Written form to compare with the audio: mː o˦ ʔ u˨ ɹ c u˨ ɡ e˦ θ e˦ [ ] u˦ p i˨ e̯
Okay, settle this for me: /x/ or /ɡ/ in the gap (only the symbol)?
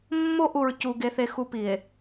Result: x